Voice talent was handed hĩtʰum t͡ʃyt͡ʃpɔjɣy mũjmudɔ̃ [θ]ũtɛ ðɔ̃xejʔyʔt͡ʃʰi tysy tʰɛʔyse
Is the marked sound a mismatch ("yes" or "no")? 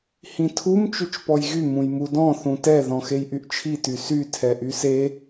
no